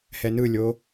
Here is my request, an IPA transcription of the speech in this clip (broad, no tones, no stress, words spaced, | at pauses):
hɛnɯlʲo